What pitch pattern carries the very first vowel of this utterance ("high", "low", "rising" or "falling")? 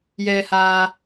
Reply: low